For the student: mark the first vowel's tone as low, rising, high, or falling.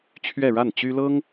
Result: falling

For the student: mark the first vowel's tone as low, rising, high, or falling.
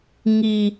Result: high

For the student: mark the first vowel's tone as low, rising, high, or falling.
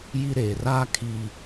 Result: high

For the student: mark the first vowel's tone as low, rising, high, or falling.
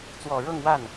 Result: low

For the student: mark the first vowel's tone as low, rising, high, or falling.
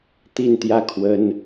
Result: falling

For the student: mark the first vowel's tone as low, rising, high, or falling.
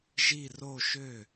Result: falling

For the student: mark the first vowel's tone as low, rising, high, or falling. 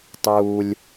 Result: low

